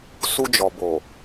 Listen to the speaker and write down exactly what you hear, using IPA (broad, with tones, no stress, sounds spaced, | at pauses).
s u˧ d͡ʒ ɔ˨ b o˨